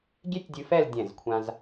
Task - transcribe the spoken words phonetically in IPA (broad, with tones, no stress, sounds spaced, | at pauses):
ɡʲ e˥ tʲ dʲ ɨ˧ f ɛ˥˧ l dʲ ɛ̃˧˩ z kʷʰ ã˧ z